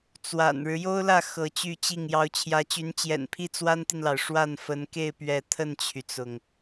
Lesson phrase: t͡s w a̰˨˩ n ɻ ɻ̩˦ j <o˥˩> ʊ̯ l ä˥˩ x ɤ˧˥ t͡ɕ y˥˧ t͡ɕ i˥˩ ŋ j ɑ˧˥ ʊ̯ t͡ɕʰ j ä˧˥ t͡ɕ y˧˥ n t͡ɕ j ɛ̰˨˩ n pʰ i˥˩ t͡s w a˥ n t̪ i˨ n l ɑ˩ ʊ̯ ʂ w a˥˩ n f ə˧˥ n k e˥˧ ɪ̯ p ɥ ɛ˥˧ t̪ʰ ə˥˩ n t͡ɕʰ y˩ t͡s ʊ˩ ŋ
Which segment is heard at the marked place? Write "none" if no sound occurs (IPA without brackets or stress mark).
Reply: o˥